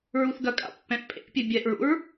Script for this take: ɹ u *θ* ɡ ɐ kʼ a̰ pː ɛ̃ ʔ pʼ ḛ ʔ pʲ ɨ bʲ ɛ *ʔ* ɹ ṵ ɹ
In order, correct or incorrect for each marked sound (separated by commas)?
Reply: correct, correct